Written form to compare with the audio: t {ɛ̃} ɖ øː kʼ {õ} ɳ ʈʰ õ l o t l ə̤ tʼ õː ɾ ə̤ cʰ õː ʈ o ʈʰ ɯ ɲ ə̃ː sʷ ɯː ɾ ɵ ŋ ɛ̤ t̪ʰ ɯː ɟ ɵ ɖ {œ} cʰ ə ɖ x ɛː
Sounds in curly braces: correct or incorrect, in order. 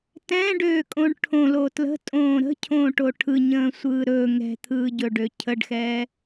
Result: correct, correct, incorrect: ø

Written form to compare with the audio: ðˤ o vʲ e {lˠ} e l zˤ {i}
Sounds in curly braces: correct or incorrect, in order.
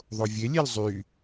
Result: incorrect: lʲ, incorrect: y

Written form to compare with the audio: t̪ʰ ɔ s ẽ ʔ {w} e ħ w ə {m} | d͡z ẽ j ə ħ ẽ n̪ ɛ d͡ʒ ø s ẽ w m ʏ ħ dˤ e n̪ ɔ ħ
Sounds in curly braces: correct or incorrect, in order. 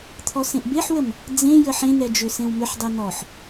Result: incorrect: b, correct

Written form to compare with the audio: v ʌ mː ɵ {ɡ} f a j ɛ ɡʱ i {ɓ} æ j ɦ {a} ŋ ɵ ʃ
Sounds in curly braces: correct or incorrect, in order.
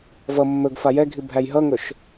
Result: correct, incorrect: bʱ, incorrect: ʌ

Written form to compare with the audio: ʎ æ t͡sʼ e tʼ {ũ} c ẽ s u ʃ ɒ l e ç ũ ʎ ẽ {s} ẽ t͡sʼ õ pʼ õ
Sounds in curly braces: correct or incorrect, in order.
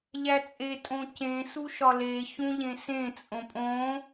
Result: incorrect: õ, correct

